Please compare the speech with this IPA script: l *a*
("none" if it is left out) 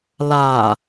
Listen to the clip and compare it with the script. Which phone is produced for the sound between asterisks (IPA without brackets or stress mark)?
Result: a